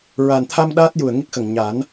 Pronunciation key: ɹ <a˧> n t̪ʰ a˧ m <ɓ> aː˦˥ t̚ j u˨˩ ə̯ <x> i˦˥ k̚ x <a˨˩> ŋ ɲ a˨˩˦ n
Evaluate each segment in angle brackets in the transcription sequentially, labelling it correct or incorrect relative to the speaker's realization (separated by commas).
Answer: incorrect, incorrect, incorrect, incorrect